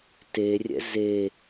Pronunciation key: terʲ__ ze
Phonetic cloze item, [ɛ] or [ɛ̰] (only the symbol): ɛ̰